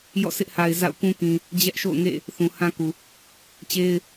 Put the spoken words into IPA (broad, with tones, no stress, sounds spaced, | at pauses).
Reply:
j ɔ̰˦˨ sʰ ɪ˦ ʔ h a˨ ɪ̯ z a̰˦˨ ʊ̯ k ũ˦ k ĩ˨ | d͡ʑ ɛ˦ ʔ ʃ o̰˦˨ ʊ̯ ŋ ḛ˦˨ | θ ũ˨ h ã˦ k u˨ | t͡ɕ e˦ ɪ̯